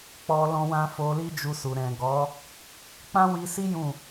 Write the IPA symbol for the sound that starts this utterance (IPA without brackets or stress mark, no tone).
k͡p